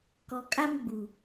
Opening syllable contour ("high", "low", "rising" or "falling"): low